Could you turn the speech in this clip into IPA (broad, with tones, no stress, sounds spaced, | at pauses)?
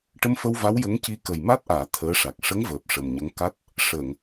ʈ ə˧ m f ə˧ w v a˧˥ w j ə˧˥ ŋ c i˧ k ə˨˩ j m a˦˥ t̚ ʔ aː˨˩˨ t̪ʰ əː˧˥ ʂ a˨˩ k̚ ʂ ə˧˥ ŋ v əː˨˩ p̚ ʂ ə˨˩ m ɲ ə˧˥ ŋ k a˦˥ t̚ | ʂ əː˨˩˨ ŋ